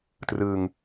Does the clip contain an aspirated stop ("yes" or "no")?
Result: no